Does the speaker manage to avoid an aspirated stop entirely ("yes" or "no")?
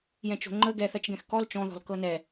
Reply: yes